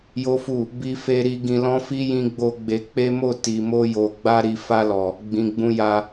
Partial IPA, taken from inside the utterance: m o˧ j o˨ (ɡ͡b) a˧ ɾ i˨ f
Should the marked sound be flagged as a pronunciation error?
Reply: no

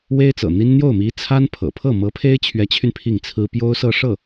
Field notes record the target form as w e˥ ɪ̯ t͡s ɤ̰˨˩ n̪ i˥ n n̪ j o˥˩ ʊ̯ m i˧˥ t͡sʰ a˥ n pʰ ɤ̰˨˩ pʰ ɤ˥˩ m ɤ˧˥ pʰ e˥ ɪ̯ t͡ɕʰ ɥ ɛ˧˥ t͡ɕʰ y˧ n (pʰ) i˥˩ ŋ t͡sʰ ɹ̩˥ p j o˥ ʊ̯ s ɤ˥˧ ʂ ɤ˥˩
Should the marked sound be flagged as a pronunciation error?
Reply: no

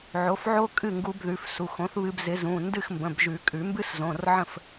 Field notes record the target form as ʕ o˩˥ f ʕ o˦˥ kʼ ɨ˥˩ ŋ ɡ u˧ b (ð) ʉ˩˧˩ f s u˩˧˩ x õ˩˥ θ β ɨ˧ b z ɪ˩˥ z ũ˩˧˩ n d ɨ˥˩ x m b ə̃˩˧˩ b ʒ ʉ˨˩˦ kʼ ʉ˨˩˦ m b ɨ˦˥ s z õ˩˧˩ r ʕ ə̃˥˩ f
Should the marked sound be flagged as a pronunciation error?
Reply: no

